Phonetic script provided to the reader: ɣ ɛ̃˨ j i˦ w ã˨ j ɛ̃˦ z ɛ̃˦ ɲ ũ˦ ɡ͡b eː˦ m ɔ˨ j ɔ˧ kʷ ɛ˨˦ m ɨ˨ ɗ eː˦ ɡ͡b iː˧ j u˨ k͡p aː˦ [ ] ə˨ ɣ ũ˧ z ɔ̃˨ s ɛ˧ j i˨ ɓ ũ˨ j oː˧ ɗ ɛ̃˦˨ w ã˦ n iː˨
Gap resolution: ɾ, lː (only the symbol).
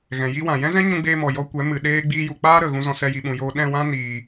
ɾ